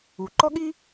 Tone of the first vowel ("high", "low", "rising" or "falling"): low